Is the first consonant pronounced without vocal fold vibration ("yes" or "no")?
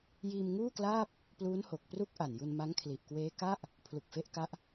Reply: no